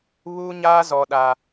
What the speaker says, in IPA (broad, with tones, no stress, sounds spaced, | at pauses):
β uː˦ ɲ aː˦ z ɔ˦ ɗ a˦